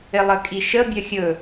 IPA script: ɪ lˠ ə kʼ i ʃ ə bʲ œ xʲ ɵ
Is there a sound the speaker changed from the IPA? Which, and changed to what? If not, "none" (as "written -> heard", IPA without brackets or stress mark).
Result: none